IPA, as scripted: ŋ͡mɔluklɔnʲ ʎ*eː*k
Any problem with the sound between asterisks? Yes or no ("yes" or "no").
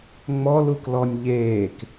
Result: no